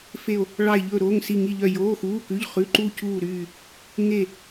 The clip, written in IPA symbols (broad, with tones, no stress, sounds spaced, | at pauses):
f e˥˧ o̯ | ɭ ɑ˥˧ e̯ ʎ ɵː˥˧ ɾ oː˧˥˧ ŋ s i˥˧ ŋ i˥˧ ʎ œ˥˧ j oː˧˥˧ x uː˧˥˧ k ʉ˧˥˧ ʎ χ ʉ˧˥˧ ǃ u˥˧ c uː˥˧ ɾ yː˥˧ | ŋ e˥˧